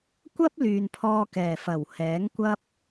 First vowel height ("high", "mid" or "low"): low